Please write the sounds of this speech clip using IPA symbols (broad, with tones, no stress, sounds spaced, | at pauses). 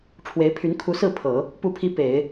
ʈ͡ʂʰ w e˧˥ ɪ̯ pʰ y˧˥ n kʰ u˧˥ s ɹ̩˥˩ pʰ ɤ˨˩˦ | p u˥˩ pʰ i˥ p e˨˩˦ ɪ̯